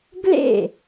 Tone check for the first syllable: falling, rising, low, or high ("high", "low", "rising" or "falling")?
falling